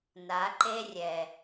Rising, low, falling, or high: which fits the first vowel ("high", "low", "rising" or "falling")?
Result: rising